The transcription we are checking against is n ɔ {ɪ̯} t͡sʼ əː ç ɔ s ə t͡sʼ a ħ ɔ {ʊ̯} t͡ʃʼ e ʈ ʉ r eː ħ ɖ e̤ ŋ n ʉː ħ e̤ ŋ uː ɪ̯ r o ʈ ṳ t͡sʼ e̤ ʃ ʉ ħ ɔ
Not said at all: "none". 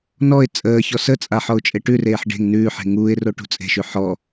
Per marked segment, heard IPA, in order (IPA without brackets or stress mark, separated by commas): ɪ̯, ʊ̯